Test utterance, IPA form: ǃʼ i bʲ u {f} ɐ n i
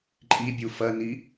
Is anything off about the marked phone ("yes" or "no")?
no